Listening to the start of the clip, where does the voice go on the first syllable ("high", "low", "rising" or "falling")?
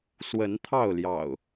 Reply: rising